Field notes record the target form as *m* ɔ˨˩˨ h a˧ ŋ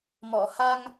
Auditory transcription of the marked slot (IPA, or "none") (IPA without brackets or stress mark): m